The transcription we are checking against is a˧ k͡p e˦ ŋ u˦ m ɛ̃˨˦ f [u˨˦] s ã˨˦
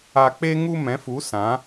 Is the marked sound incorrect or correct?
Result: correct